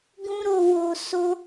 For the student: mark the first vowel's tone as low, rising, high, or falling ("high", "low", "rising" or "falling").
high